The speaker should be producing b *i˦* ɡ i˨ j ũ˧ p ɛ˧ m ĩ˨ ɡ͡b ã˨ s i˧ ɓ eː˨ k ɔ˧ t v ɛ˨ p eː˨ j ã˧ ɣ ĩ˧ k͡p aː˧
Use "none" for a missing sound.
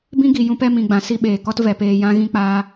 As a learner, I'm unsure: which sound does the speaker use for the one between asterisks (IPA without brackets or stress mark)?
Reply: ĩ˦